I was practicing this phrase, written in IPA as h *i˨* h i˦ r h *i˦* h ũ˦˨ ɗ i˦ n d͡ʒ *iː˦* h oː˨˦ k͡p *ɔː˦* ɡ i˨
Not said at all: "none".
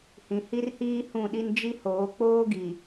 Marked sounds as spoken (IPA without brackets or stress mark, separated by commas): ĩ˨, iː˦, i˦, oː˦